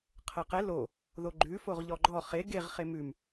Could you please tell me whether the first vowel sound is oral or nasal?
oral